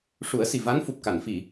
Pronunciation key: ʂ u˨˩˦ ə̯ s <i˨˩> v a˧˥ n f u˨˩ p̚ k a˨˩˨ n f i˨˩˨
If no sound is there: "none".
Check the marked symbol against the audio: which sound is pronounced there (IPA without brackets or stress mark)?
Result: i˨˩